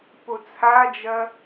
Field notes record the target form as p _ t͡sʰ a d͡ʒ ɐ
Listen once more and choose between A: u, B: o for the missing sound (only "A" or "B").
B